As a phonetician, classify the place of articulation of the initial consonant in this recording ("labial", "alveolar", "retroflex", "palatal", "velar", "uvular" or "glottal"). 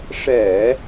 retroflex